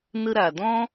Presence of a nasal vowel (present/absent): present